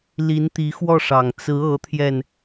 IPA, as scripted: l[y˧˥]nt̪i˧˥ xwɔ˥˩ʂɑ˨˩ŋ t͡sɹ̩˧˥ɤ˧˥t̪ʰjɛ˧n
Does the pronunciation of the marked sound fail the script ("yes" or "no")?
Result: yes